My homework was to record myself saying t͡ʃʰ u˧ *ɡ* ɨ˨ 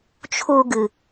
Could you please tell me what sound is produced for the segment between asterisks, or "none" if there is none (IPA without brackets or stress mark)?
ɡ